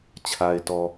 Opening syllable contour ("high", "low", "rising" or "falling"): low